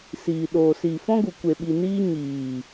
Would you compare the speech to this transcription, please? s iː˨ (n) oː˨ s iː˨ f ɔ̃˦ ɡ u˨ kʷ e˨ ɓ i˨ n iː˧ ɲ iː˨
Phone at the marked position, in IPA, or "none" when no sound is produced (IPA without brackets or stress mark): ɗ